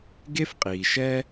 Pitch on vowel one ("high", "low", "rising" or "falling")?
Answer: high